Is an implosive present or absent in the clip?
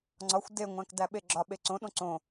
present